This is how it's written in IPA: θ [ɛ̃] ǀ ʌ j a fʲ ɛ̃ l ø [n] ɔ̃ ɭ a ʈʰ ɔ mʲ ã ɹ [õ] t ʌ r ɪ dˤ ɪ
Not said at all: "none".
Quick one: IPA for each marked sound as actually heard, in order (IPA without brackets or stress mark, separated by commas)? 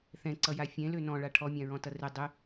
ɛ̃, n, ɔ̃